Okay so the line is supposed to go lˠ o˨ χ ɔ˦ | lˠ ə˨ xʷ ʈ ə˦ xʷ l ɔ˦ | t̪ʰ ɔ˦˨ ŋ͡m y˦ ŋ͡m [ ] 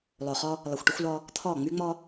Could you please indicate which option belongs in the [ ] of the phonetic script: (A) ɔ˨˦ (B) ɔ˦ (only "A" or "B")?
B